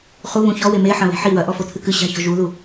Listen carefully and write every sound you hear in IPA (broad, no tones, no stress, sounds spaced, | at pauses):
χ u β ũ ç ɔ w e m e ħ ɐ̃ β e̤ ħ i w ɐ ʔ ɔ f o t̪ʰ ɨ k ɨ ɕ a̤ ç ɔ̤ ʒ u ð u